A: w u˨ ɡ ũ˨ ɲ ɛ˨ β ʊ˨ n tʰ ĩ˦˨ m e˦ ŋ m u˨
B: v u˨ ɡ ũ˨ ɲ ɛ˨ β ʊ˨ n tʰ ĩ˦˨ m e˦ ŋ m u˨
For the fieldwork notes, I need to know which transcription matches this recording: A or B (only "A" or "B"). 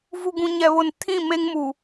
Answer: B